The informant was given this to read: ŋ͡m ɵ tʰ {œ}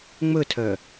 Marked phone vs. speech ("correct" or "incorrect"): correct